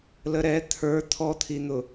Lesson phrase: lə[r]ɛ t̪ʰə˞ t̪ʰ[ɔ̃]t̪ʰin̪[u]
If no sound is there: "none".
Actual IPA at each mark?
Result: ɾ, ɔ, ʊ

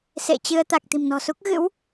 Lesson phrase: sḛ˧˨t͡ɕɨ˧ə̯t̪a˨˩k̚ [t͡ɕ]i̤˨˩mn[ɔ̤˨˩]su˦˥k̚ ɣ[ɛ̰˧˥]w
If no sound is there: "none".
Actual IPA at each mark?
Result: t̪, ɔ̤˨˩, ɨ̰˧˥

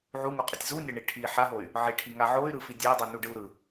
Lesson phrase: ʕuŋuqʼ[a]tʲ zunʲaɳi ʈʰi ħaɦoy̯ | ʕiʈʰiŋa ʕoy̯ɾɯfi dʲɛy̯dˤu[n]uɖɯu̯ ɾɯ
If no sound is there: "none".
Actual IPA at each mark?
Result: ʌ, n

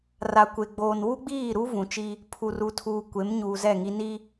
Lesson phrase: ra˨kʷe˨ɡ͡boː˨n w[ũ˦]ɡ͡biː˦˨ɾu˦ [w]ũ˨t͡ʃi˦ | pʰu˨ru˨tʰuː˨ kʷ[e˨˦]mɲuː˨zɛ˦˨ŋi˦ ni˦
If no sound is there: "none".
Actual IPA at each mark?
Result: u˦, v, e˨˦

